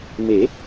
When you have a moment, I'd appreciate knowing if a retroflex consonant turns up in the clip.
no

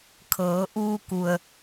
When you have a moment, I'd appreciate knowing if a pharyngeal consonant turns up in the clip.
no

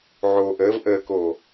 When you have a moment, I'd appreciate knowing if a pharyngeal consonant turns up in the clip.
yes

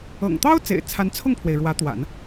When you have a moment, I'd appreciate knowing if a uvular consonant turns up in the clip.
no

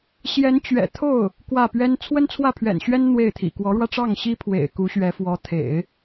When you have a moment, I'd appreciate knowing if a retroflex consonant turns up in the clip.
yes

